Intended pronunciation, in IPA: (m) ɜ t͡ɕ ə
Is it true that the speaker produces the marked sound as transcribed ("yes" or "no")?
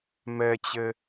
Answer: yes